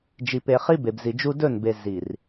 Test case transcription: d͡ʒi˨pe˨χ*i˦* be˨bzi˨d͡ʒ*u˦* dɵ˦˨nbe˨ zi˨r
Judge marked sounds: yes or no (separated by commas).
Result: yes, yes